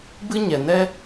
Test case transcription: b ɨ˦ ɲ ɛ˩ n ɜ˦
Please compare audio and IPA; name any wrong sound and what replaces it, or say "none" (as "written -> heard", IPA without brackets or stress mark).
ɜ˦ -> ɛ˦